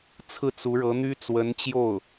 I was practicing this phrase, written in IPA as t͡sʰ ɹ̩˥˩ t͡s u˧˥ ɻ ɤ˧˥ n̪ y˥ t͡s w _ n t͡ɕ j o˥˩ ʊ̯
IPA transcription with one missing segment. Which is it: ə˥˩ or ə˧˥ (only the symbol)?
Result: ə˧˥